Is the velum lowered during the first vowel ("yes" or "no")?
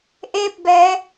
no